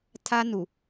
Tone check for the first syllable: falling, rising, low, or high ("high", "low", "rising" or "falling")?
high